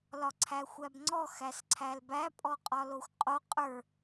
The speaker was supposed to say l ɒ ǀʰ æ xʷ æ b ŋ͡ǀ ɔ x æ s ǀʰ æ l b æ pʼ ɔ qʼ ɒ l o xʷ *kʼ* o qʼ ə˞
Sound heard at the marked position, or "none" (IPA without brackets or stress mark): qʼ